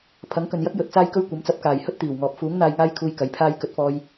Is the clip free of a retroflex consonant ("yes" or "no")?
yes